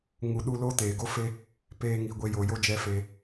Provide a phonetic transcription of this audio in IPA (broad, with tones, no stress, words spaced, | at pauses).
ŋu˨ɗu˧ lo˦teː˨ɡo˦fe˦ | peː˧ŋi˨ ɡʷe˧jo˨ jo˧d͡ʒɛ˧ fe˧